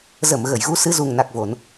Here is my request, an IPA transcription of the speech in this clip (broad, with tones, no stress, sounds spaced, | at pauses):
z ə˧˩ m ɣ ə˧˩ j ɣ u˨˦ s ɨ˨˦ z u˨˩ ŋ n a˨˩ k̚ v o˧˩˨ n